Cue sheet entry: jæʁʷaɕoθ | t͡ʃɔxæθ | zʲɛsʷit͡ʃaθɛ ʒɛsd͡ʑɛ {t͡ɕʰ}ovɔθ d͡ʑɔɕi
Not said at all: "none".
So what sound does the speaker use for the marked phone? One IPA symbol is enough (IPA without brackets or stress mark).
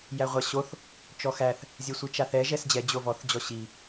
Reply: d͡ʑ